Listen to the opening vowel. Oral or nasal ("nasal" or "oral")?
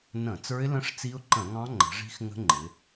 nasal